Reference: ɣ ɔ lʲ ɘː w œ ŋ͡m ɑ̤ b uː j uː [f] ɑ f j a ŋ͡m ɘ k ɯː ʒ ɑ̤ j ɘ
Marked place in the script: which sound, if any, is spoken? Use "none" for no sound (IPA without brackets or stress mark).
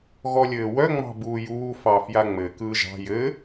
f